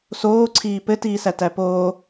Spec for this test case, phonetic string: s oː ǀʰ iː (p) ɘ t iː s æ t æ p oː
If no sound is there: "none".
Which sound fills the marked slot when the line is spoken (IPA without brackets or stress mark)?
p